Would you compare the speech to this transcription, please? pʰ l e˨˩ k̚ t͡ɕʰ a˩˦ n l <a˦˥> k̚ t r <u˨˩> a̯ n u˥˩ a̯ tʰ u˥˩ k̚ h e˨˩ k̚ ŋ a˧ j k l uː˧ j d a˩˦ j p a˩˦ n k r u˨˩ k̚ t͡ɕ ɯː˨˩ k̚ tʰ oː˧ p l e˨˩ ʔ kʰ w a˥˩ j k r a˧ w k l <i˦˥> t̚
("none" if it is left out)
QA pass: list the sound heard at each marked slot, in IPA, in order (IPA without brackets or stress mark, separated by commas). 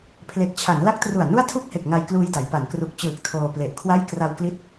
a˦˥, u˨˩, i˦˥